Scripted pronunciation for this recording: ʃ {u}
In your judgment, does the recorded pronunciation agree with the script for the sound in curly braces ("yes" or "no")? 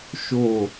no